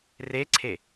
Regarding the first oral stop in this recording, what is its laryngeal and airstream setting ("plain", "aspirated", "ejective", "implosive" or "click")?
click